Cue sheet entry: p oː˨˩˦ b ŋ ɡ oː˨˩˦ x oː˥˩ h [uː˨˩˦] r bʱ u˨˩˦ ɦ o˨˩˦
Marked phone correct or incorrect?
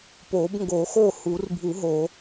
correct